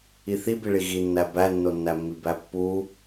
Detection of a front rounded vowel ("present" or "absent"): absent